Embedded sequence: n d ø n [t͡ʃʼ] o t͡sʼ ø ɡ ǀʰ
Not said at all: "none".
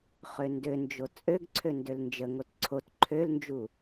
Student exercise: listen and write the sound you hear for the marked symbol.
d͡ʒ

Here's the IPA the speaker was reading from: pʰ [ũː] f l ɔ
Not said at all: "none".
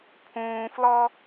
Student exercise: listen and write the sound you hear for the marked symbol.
ũː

